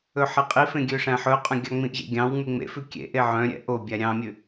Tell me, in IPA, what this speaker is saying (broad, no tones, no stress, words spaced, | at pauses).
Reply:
ɵħeqʼifẽ ɡʲøʂæ̃ħɵqʼœ̃ ɡʲɑŋ͡mĩʔʑḛ ɡʲɑ̃w ŋ͡myŋ͡mḛfʉ kʲḛʔe ʕœ̃ ɾʲɛ̰ʔobʲæ ɾʲɑ̃mʲʉ